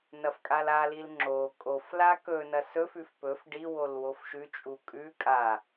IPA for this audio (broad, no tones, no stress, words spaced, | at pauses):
nɐfkʼalalil ŋ͡ǁo kʼofla kɵnɐ sɵfʉf pɵf ɖiwol wofʃʉt͡ʃʼu kʼʉ kʼa